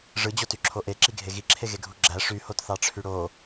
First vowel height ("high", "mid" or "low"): high